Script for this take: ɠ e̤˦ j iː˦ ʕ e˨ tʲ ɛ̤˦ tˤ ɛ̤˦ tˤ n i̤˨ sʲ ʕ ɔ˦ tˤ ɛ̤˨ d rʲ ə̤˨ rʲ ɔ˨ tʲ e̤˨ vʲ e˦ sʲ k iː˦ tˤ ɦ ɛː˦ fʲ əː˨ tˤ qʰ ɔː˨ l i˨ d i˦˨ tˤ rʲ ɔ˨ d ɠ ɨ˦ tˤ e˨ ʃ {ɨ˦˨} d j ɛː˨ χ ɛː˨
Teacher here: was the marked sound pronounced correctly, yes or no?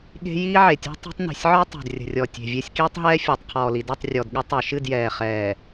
yes